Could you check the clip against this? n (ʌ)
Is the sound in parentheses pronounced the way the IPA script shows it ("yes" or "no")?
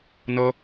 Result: yes